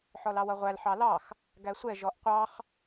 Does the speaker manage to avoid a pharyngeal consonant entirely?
no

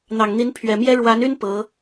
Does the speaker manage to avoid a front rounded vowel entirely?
no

